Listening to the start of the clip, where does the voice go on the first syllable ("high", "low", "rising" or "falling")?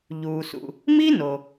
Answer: low